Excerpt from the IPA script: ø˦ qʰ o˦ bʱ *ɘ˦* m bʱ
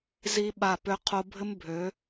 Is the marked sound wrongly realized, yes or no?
no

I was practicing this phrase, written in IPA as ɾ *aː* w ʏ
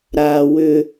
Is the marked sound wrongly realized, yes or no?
no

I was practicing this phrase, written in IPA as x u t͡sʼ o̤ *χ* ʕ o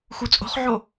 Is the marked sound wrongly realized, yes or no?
no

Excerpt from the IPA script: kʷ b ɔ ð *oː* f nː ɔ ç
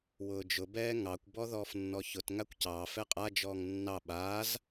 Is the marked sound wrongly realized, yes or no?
yes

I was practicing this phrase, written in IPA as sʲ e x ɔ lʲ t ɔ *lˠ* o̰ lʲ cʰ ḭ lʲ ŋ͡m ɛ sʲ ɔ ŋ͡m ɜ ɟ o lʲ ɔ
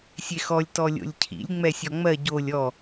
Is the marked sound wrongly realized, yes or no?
yes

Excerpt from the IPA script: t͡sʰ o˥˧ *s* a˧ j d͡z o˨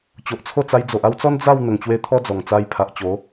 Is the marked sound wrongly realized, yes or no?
yes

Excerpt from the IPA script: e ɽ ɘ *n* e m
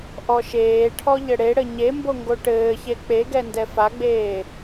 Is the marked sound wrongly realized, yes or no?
yes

